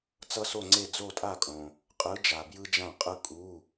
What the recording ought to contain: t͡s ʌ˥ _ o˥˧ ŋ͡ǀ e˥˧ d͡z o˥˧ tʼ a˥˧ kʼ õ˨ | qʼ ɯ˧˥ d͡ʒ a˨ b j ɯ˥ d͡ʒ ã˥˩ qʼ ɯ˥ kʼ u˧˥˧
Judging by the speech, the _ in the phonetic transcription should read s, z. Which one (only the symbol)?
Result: s